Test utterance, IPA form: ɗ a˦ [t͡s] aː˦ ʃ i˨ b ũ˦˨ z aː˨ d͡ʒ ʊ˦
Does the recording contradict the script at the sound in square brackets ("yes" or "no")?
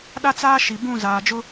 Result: no